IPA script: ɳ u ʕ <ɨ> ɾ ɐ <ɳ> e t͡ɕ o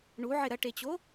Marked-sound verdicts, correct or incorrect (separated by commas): incorrect, incorrect